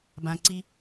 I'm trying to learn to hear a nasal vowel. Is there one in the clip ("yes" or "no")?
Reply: yes